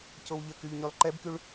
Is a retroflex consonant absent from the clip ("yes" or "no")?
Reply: no